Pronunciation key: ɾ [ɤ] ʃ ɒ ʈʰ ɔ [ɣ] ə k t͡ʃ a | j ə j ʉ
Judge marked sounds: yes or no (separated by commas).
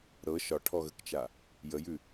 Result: yes, yes